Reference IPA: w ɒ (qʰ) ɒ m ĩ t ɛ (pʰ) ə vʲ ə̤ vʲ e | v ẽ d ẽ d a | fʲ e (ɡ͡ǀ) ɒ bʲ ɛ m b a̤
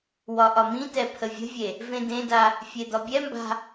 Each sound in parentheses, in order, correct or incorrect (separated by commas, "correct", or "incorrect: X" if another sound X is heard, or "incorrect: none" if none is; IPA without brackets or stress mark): incorrect: ʔ, correct, incorrect: d̪